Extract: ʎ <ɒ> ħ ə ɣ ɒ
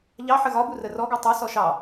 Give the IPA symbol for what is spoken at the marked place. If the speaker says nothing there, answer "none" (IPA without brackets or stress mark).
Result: ɑ